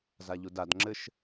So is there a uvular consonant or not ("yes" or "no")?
no